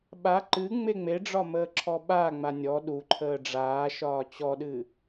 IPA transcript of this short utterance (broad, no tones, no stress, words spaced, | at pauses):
ɓa ǃɨ ŋ͡meŋ͡meɖ͡ʐɒ məːǁʰɔɓaŋ͡ma nʲɔ ɗuǃʰəː ɖ͡ʐaːʃɒː t͡ɕɔɗɨ